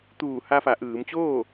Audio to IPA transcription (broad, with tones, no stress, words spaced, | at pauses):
t̪uː˧˩ ha˧fa˩˧ʔɯː˩˧mt͡ɕoː˥˨